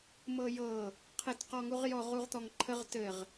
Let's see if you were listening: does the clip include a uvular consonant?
yes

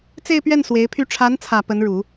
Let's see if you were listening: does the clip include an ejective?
no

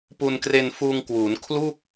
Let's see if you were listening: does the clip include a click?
no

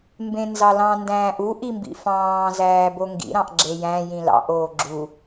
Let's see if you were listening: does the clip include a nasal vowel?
yes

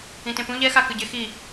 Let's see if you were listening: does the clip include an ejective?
no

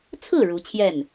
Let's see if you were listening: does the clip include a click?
no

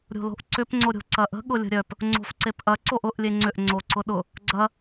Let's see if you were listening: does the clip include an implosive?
yes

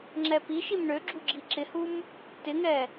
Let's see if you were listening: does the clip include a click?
yes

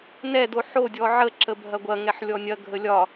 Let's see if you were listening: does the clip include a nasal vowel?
no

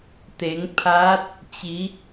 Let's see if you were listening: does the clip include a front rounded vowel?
no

